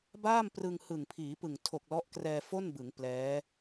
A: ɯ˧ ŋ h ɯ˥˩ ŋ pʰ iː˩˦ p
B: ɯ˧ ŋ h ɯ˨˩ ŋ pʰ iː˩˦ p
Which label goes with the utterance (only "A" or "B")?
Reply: B